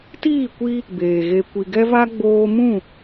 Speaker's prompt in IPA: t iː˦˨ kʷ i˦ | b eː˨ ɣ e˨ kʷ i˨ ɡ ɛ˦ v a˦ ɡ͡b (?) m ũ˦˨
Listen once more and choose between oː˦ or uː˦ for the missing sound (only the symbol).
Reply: oː˦